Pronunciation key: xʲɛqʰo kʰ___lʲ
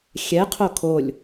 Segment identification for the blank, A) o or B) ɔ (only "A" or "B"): A